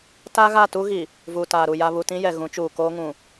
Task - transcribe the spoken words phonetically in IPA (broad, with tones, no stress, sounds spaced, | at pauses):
t a˦ ɣ a˦˨ t u˦ ɣ i˨ | v uː˨ t aː˨ ɾ u˨ j a˨ β u˨ t ĩ˦ j ɛ˨ ɣ ũ˨˦ t͡ʃ uː˨ k oː˦ ŋ ũ˨